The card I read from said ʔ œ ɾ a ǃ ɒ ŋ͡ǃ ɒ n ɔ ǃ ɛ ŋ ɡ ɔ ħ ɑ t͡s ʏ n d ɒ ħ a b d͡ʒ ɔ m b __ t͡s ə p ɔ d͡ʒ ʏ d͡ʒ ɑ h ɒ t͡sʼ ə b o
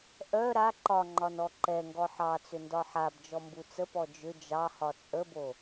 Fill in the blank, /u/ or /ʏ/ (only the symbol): u